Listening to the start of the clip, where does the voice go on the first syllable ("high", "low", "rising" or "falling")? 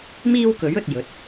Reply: high